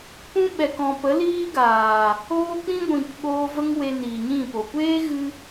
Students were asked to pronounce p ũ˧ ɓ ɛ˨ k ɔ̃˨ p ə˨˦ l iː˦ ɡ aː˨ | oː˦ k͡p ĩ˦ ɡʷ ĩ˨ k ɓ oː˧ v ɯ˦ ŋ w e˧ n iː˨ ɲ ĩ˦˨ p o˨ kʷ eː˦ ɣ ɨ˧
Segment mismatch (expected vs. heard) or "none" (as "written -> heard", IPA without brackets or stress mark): ɯ˦ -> ə˦